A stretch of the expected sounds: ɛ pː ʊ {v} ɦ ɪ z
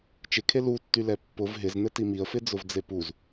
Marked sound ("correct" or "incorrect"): correct